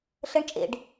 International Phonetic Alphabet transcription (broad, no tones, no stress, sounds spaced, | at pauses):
ɬ ə ɳ t͡ʃʼ ḛ ɖ